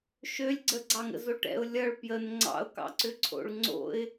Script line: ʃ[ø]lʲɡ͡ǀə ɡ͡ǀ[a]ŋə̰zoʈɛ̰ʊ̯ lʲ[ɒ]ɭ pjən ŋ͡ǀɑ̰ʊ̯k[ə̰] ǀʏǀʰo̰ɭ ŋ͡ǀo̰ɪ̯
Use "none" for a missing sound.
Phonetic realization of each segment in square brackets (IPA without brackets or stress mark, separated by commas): ø, ɑ, ʌ, ɑ̰